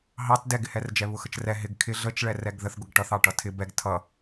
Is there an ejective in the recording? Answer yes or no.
no